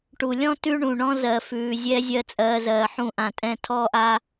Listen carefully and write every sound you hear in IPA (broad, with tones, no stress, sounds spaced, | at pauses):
ʈ u˨ lʲ ɔ̃˦ t ʉ˦ ɳ ũ˨ ɳ ɔ̃˦ z ɜ˨ f ʉː˨ zʲ ɛ˧ zʲ ɜ˦ t͡sʼ ɜː˧ z ɜː˨ ħ ũ˦˨ ʔ ã˨ tʼ ɛ̃˦˨ tʰ ɔː˦ ʔ a˧